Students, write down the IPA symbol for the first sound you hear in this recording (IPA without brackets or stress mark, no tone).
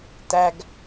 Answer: t